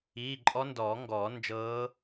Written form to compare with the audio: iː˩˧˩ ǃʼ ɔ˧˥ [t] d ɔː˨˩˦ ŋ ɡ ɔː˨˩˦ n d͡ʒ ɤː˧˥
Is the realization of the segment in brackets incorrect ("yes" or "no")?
yes